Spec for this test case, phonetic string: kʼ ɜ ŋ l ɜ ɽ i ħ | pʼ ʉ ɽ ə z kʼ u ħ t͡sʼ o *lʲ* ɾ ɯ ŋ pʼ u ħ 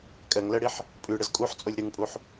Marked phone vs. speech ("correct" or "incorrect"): correct